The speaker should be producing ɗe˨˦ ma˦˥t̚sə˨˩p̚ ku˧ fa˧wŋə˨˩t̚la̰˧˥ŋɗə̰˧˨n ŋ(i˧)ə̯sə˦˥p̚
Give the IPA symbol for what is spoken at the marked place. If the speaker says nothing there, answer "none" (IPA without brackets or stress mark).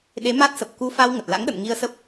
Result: i˧